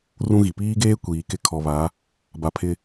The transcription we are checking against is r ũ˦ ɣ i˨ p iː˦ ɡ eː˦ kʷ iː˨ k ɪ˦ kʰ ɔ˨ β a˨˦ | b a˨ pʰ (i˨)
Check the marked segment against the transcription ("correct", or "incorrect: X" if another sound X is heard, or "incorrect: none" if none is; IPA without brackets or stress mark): incorrect: ɪ˨